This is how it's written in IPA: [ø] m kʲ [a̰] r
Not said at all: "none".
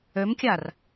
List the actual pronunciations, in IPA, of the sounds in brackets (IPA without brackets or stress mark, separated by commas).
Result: ø, a